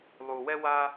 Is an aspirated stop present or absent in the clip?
absent